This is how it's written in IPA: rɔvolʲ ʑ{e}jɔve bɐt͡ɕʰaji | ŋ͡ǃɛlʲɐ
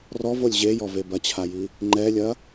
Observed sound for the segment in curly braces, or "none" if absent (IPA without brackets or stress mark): e